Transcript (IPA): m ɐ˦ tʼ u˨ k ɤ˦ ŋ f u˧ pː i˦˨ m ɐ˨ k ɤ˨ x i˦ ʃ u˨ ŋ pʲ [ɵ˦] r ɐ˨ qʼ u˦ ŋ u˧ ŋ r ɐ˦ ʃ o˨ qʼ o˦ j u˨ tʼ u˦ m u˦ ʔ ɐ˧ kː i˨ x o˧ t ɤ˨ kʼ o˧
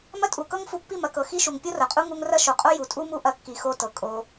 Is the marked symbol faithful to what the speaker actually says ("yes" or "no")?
no